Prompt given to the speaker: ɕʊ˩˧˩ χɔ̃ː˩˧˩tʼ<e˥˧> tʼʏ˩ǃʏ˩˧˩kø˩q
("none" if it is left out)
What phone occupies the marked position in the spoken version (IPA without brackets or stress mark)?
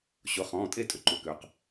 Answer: e˥˧